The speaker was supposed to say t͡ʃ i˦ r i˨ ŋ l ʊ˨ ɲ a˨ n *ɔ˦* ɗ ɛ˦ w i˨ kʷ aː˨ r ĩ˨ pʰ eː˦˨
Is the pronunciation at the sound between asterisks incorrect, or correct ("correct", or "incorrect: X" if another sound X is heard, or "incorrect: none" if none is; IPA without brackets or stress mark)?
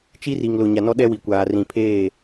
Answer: correct